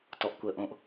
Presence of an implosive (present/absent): absent